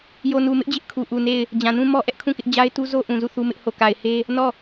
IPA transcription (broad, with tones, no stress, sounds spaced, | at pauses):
j o˨ n u˨ m ɪ˦ ʔ d͡ʑ ɪ˦ ʔ kʰ u˨ ʔ u˨ n e˦˨ ɪ̯ | d͡ʑ ã˨ n ũ˦ m ɔ˦ ʔ ɛ˦ ʔ kʰ ũ˦˨ k ɪ˦ ʔ d͡ʑ a˦ ɪ̯ t u˦ z o˦ ʔ ũ˨ z u˦˨ θ u˦ m ɪ˦ ʔ h o˦˨ k a˨ ɪ̯ h e˦ | n ɔ˦˨